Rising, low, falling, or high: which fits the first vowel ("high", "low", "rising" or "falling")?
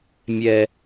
high